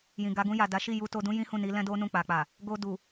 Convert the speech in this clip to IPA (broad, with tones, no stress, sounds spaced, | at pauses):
j ĩ˨ ɡ a˨˦ ɡ ũ˧ j a˨ d a˨˦ ʃ i˦˨ j u˧ t o˧ d ũ˦ j ĩ˦ h ũ˦˨ n i˨˦ l ɛ̃˦ d o˦ n ũ˦˨ k͡p a˨ k͡p a˨ | ɡ o˧ d u˨